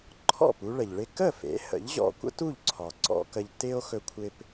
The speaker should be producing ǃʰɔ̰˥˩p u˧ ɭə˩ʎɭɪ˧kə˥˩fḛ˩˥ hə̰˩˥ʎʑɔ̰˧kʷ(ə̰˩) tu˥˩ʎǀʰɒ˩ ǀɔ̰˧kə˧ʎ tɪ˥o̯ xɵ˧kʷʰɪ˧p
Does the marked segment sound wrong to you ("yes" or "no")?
yes